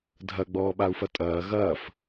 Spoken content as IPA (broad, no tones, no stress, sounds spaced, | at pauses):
dʱ ɐ ɡ͡b ɔː ɓ a u̯ f ɐ tʼ ɐː ɣ ɐː f